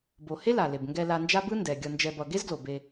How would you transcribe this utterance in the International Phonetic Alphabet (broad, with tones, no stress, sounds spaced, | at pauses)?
b o˧ h e˦ l a˨ l e˨ b ŋ ɡ ɛ˧ l a˧ n d͡ʒ a˦ b ɯ˦ n d ɛ˨ ɡʲ ʌ˧ n d͡ʒ ɛ˧ b ʌ˧ ɡ e˦ z ɡ l o˨ b e˧